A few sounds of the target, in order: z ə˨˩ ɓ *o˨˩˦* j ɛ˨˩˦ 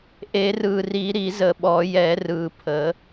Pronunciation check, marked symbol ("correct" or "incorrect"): incorrect